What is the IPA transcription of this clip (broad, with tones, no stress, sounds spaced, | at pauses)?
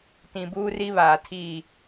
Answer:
t ĩ˨ b uː˦ r i˦ β aː˨ tʰ iː˦˨